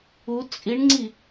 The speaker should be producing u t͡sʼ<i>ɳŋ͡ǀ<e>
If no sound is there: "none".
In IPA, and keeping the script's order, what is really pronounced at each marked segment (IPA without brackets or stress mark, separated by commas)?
i, i